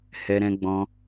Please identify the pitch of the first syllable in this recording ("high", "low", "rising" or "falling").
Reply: high